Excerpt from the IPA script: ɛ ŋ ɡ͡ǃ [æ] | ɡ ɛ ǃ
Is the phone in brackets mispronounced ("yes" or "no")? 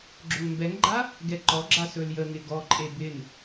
yes